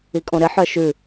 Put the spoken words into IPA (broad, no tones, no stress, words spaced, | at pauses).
ikʼõɾɪ ħœʃʉ